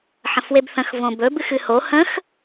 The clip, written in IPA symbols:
ħ ə̃ f w e b θ ə̃ x v õ b ɵ b ɨ x ɨ h o h ə̃ x

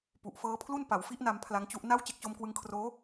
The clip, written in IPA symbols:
p u˨˩ ʔ f ɤː˦˥ pʰ l u˥˩ n p a˩˦ w f i˦˥ ʔ n a˧ m pʰ l a˦˥ ŋ t͡ɕ u˦˥ ʔ n a˥˩ w t͡ɕ e˥˩ k̚ t͡ɕ o˦˥ m k w ɯ˦˥ ŋ kʰ r oː˦˥

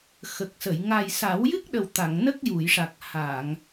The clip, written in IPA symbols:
x ə˨˩ k̚ s ə˨˩˨ j ŋ a˨˩ j s a˨˩˦ w j ɨ˦˥ k̚ ɗ ə˨˩ w t̪ a˨˩˨ ŋ n ə˦˥ k̚ j u˨˩˨ j ʂ a˨˩ k̚ h a˨˩˨ ŋ

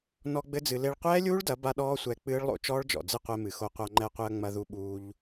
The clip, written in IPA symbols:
n ɔ˧ ɡ͡b ɘ˦ d͡z ɨ˧ l e˧ ɭ qʷ ɛː˦ lʲ uː˦ ɭ d ɐ˨˦ b a˦ ɗ ɔː˦ sʷ ɛ˧ k͡p ɨː˦ ɭ lˠ o̰˧ t͡ʃ ɔː˦ ɭ d͡ʒ ɔ̰˨ d͡z ɨ˦ qʷ ɛ˧ m ɨ˨ x o˧ qʷ a˧ ŋ͡ǃ ɛ˧ qʷ ɨ˧ ɐ̯ ŋ͡m ɐ˧ ð u˧ ɓ uː˧ ʎ

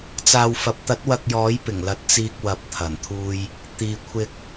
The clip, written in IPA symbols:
t͡s aː˨ w f ɐ˨ p̚ t̪ ɐ˨˥ t̚ w ɐ˧ k̚ j ɔː˨˥ j p ɪ˨˩ ŋ l ɐ˨ t̚ t͡s iː˧ k̚ w ɐ˨˥ p̚ t̪ʰ ɐ˨˩ n t̪ʰ uː˧ j | t̪ iː˨ kʷʰ ɪ˧ k̚

